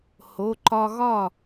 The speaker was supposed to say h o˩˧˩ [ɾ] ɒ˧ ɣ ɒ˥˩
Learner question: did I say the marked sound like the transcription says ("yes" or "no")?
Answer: no